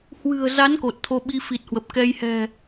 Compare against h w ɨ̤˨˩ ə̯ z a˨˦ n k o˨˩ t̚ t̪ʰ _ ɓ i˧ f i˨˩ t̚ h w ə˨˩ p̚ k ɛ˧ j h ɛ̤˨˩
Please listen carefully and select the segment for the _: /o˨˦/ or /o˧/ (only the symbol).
o˧